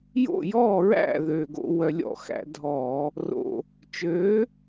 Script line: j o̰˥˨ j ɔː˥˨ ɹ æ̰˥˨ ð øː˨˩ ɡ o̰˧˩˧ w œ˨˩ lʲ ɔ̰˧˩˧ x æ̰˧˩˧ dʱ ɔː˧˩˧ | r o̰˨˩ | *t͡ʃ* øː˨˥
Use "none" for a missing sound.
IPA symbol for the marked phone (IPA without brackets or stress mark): t͡ʃ